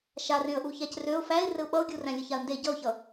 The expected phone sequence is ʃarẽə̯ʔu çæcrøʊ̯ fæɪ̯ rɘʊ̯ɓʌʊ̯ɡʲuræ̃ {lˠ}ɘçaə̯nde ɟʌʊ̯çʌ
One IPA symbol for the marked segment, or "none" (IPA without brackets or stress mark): lʲ